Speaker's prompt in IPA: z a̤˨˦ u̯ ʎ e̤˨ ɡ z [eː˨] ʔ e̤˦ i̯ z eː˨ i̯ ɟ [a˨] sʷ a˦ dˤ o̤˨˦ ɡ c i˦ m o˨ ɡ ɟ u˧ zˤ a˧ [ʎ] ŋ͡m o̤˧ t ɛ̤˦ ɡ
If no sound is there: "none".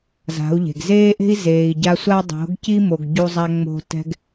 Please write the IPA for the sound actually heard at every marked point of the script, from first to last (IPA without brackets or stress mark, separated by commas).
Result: eː˦, a˧, none